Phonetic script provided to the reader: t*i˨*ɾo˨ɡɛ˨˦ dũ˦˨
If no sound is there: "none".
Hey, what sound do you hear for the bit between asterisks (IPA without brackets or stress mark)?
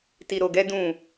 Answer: i˨